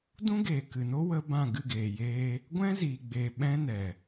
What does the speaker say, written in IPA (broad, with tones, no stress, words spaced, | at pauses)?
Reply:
dũ˦ɡeː˨ kɨ˨no˦ wə˦bã˦˨ ɡɨ˦˨ɡeː˨jeː˧ | ɡʷɛ̃˦ ziː˨ɡ͡beː˨ ɓɛ̃˦nɛ˨